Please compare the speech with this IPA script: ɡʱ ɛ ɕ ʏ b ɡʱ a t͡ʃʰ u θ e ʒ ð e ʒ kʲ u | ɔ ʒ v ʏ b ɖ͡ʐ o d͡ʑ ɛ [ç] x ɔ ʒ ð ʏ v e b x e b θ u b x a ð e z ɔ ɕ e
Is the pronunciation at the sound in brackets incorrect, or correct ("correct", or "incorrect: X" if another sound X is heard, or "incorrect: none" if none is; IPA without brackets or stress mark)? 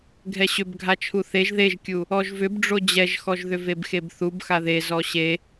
incorrect: ʒ